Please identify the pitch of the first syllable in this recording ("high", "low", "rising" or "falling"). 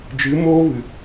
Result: rising